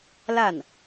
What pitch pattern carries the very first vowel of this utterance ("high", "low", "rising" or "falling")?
falling